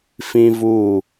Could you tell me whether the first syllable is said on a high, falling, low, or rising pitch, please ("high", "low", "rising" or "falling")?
high